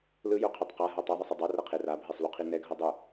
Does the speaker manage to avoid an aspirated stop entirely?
no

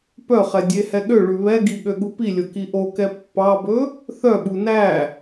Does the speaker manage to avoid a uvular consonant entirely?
no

